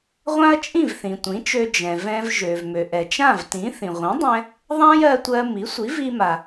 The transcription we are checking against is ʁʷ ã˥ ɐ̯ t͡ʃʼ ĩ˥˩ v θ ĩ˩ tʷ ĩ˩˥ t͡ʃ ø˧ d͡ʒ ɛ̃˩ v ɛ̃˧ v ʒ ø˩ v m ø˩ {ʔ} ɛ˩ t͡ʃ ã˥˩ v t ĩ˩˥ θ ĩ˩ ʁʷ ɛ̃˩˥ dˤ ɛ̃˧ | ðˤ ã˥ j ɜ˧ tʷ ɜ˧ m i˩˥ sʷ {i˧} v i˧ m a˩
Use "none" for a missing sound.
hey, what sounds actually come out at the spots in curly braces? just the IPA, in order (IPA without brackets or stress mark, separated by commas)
ʔ, i˩˥